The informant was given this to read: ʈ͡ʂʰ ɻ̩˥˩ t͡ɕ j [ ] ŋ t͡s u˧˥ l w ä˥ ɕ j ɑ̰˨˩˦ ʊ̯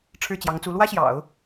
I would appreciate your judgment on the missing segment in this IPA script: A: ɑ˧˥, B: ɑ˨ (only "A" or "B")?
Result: A